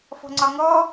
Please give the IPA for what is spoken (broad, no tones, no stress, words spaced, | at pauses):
fɔ̤ŋ͡ǀɒŋɔ